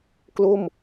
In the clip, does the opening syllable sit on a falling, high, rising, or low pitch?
falling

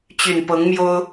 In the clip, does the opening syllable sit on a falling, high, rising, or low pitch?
low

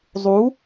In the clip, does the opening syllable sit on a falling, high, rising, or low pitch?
rising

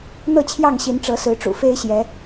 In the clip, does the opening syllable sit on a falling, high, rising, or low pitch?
falling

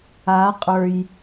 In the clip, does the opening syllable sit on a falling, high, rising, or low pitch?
rising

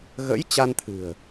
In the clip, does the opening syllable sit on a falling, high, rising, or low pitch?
rising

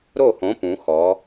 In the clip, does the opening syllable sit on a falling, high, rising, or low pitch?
falling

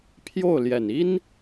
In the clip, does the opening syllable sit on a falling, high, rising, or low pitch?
falling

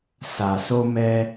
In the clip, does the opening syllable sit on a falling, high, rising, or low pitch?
low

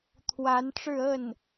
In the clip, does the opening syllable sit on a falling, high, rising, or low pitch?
rising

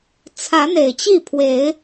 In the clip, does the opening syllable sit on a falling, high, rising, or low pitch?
rising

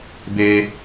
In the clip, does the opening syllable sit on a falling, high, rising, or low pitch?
high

